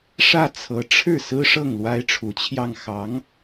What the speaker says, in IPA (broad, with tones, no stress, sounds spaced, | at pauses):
ʂ ä˥˩ t͡sʰ ɤ˧˥ ʈ͡ʂʰ ɻ̩˥˩ s ɹ̩˥ ʂ ɤ˥˩ ŋ l w a˥ ɪ̯ ʈ͡ʂʰ u˧˥ t͡ɕʰ j ɑ˥˩ ŋ x ɑ˧˥ ŋ